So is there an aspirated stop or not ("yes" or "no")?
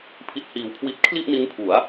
yes